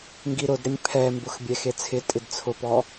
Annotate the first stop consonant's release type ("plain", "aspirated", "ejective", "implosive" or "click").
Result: plain